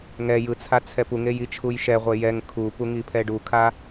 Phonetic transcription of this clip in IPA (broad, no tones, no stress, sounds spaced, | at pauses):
ŋ ɛ j ɯ t͡sʰ a t͡sʰ ɛ p u ŋ e j i t͡ʃʰ u j ʃ ɛ ʁʷ e j ɛ ŋ kʰ u p u ŋ i pʰ ɛ ɖ u kʰ a